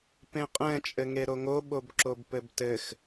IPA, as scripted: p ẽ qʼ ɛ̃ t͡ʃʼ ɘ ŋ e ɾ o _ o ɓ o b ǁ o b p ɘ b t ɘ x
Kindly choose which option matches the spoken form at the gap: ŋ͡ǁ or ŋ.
ŋ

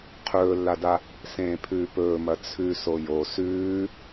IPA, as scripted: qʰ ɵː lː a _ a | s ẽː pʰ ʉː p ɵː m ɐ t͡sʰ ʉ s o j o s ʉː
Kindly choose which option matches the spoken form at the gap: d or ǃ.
d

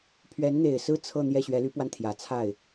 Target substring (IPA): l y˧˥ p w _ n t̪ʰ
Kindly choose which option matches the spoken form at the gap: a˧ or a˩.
a˧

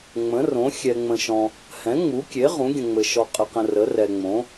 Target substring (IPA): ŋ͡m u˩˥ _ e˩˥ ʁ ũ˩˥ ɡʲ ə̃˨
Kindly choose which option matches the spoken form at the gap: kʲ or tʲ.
kʲ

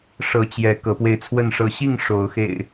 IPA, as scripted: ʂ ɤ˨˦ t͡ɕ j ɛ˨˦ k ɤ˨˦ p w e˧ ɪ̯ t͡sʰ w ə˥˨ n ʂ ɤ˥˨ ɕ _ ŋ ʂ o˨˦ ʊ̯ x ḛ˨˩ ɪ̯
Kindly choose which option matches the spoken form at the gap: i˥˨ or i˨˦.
i˥˨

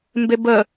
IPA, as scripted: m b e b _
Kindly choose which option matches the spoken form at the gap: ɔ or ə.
ə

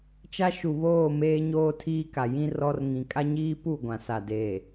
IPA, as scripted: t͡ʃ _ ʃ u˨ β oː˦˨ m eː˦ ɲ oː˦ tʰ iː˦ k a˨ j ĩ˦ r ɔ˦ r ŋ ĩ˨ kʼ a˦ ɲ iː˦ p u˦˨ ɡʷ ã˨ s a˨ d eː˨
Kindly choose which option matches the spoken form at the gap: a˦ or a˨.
a˦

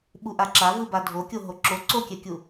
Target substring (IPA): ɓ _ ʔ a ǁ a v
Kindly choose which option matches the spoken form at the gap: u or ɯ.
u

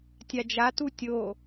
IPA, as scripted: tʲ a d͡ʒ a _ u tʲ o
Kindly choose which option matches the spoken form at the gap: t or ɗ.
t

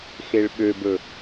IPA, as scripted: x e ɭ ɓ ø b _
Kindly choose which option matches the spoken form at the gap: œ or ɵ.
ɵ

